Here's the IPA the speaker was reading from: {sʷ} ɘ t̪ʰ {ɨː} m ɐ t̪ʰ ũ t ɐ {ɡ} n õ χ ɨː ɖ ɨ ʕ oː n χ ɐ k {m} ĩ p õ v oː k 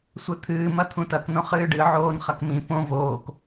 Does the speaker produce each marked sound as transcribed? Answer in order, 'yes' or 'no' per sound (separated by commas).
yes, yes, no, yes